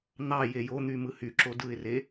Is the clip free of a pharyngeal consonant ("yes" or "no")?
yes